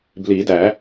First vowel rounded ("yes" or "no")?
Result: no